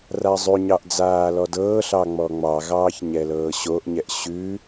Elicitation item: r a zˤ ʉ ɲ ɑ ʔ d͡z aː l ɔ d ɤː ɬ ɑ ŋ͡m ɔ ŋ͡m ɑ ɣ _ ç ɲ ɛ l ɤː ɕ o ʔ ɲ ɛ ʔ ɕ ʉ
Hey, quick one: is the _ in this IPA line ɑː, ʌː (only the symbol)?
ɑː